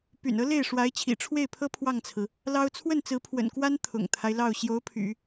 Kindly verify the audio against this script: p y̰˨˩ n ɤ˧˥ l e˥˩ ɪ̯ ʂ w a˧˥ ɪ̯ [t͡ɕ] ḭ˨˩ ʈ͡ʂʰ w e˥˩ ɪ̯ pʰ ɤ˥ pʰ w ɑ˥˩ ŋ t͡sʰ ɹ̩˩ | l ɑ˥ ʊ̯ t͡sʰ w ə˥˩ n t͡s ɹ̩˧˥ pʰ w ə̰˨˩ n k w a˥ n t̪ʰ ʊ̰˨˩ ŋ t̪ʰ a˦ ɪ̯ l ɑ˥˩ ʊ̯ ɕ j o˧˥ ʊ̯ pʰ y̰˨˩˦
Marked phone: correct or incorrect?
incorrect